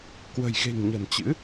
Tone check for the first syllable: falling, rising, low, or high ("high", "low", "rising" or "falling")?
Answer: low